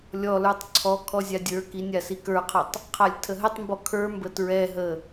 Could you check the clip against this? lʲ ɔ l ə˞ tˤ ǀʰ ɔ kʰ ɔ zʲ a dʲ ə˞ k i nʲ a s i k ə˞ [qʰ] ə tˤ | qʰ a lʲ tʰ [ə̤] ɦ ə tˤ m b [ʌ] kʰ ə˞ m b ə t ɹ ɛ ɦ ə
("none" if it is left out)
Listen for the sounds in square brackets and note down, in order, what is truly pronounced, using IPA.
qʰ, ə, ɔ

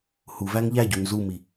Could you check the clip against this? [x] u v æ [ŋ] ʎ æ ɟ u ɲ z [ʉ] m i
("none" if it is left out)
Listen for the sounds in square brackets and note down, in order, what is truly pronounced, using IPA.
h, ŋ, u

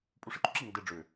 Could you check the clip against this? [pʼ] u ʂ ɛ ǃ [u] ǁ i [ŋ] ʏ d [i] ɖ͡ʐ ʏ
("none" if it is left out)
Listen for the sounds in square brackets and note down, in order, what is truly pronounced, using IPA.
pʼ, u, ŋ, e

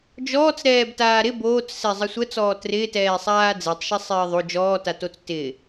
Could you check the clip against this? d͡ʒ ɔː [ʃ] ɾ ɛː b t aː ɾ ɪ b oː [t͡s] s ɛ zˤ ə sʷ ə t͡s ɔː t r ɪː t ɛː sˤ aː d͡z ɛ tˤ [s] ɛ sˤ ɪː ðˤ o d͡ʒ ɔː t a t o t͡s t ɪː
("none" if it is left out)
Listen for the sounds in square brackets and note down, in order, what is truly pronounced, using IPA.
t͡s, t͡s, ʃ

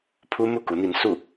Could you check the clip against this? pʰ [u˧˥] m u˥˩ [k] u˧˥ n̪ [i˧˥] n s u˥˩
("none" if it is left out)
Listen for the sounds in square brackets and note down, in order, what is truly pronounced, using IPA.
u˥, k, i˧˥

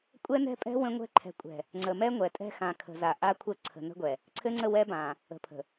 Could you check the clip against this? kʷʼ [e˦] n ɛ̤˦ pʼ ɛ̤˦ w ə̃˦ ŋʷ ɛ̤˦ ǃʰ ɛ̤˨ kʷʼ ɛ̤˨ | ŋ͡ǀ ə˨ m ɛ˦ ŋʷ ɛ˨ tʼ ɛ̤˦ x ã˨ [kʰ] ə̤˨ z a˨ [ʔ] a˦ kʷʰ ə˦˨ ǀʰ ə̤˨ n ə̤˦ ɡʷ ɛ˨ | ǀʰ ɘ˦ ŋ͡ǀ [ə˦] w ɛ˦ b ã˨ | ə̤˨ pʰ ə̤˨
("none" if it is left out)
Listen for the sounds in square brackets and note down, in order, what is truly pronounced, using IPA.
ɛ˦, kʰ, ʔ, ə˦˨

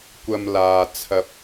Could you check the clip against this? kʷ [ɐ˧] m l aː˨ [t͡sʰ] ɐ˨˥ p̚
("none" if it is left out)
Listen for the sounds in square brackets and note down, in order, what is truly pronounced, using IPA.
ɐ˧, t͡sʰ

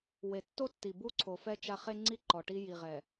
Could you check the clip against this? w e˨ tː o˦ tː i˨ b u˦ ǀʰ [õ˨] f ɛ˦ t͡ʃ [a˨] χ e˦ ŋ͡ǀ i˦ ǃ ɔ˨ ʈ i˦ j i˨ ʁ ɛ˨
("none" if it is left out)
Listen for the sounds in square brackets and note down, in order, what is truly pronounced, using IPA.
o˨, a˦

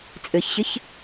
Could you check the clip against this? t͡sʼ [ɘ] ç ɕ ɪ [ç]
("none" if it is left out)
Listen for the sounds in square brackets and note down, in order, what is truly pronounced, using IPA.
ɘ, ç

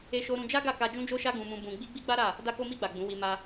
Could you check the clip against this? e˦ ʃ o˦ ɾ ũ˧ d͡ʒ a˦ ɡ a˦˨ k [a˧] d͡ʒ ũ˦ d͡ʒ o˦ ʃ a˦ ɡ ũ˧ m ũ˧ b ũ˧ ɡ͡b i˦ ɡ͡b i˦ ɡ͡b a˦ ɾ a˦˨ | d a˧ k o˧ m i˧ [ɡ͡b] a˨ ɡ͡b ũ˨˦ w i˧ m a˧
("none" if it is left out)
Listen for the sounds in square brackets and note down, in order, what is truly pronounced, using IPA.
a˧, ɡ͡b

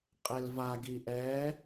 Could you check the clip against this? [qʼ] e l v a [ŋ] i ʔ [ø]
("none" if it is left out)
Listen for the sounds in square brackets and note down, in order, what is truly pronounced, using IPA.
qʼ, ɡ, ɛ

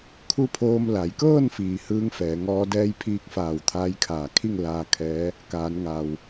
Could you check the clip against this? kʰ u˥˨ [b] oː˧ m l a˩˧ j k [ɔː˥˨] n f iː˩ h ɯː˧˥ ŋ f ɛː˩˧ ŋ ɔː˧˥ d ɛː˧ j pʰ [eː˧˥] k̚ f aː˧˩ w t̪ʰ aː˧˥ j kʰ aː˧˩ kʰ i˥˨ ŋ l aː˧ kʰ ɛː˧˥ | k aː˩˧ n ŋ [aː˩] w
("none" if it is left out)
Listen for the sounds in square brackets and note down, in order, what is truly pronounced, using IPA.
pʰ, ɤː˥˨, iː˧˥, aː˩

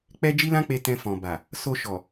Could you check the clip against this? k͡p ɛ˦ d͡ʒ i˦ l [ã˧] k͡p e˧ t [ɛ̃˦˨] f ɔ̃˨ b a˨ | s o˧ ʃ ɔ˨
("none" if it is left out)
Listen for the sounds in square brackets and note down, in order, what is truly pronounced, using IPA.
ã˦, ɛ̃˧

